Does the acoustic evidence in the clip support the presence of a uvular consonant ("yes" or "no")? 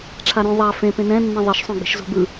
no